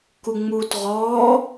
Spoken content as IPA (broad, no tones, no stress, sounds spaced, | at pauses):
k u ŋ͡m uː t ʁ ɔː